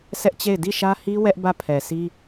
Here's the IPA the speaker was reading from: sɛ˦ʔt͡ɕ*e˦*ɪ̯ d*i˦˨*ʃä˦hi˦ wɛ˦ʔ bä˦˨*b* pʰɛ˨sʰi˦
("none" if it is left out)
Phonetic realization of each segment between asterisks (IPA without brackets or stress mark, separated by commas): e˦˨, i˦˨, none